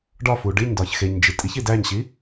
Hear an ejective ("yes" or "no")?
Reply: yes